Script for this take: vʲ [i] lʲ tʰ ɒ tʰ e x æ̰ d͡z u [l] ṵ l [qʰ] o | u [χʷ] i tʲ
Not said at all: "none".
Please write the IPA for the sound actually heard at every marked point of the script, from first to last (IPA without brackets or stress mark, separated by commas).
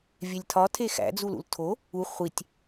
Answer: e, l, tʰ, χʷ